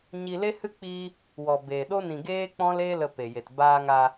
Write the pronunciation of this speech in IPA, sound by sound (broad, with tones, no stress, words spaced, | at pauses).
ɲi˧le˦hɨ˦ k͡piː˦ | wɔ˨beː˨ɗo˦ nĩ˨ ɡeː˦k͡pɔ̃˦l e˦lə˧ pe˨je˨t baː˧ŋa˧